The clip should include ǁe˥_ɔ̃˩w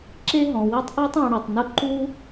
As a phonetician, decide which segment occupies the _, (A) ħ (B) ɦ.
B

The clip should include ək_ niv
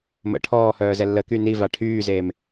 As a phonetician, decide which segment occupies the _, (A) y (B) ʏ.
A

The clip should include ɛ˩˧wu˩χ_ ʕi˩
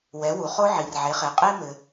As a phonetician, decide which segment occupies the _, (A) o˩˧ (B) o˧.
B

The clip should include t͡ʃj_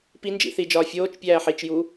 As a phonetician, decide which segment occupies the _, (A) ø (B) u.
B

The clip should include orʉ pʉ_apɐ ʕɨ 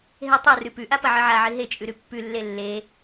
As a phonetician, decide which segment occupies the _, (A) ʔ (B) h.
A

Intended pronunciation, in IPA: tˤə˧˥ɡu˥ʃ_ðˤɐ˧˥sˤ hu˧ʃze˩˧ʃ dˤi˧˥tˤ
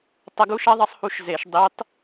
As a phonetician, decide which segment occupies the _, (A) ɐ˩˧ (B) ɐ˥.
B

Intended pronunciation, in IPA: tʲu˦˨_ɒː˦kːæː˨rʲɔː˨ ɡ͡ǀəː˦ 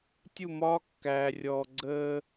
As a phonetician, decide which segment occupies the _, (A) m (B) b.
A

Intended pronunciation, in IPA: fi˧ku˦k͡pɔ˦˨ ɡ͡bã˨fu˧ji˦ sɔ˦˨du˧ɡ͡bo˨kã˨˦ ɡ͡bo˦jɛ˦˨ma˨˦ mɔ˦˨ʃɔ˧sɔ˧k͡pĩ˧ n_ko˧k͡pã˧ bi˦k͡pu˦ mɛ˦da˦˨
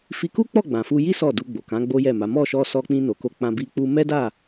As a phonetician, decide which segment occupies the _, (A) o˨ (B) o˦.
A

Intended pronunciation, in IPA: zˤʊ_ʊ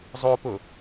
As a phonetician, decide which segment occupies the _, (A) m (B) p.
B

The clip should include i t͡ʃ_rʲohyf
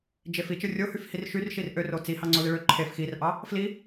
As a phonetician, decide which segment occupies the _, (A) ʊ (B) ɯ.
B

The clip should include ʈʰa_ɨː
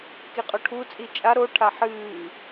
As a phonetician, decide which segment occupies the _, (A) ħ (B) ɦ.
A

